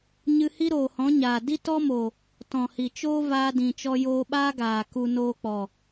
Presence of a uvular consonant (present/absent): absent